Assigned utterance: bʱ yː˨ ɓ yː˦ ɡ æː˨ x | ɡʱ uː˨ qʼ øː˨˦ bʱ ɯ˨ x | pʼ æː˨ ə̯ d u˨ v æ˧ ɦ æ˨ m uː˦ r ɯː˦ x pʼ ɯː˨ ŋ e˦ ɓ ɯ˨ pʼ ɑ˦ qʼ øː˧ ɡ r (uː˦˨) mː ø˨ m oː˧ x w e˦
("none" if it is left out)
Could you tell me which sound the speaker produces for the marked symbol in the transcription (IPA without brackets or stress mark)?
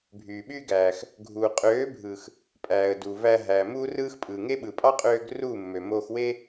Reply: uː˦˨